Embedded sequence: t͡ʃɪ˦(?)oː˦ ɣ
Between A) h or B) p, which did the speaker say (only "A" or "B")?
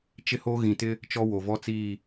A